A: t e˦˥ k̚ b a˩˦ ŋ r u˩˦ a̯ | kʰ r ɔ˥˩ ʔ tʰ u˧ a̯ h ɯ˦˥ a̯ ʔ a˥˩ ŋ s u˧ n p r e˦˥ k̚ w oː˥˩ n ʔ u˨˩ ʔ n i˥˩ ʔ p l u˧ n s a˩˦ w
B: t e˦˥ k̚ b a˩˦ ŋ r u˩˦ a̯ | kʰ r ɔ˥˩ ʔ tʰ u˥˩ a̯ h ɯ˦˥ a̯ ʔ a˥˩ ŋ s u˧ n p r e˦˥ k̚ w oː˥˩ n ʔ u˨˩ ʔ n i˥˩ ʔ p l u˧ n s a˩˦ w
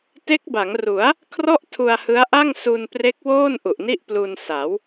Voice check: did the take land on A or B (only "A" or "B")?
A